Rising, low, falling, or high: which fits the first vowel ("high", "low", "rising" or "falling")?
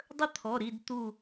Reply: high